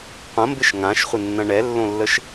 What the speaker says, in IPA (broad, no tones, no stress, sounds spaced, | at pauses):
qʷ ɐ̃ m b ɪ ʃ ŋ ã ʃ χʷ ɪ nː ɐ̃ ɳ ɛ lː õ lː ə ʃ